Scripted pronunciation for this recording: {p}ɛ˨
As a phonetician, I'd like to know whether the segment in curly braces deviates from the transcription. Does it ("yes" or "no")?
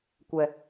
yes